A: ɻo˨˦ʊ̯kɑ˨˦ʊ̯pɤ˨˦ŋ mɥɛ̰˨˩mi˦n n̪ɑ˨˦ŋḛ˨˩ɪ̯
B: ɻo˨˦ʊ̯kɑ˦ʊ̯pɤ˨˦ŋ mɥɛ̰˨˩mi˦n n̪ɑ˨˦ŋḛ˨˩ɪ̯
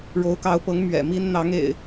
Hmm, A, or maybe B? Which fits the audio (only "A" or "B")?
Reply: A